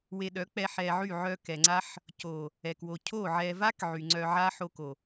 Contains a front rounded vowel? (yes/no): yes